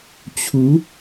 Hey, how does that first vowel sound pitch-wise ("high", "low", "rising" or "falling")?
rising